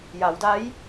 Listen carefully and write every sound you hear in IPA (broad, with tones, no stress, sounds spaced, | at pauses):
j a˩˧ w d a˧˥ j